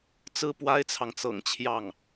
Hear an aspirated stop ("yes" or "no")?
yes